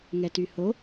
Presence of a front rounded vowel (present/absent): present